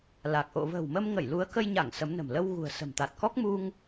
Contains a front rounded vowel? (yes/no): no